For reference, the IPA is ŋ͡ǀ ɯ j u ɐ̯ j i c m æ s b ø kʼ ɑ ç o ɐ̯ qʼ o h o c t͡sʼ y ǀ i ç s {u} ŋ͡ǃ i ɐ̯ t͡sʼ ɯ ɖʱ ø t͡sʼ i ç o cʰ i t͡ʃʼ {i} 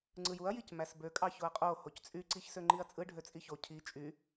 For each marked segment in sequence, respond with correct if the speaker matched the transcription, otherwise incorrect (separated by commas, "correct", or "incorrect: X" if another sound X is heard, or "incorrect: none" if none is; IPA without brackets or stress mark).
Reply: incorrect: ø, incorrect: y